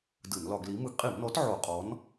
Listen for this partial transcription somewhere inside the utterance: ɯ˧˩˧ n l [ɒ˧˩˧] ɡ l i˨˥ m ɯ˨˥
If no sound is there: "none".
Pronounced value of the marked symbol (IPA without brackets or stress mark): ɒ˧˩˧